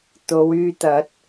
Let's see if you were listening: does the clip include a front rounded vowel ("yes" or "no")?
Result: yes